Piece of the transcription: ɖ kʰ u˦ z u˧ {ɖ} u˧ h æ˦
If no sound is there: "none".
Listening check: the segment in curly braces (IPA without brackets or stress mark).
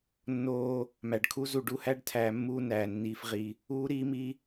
ɖ